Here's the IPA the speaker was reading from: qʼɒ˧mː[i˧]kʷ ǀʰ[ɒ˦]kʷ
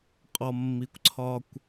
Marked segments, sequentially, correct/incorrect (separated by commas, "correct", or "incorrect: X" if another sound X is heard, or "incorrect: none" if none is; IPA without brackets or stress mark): correct, correct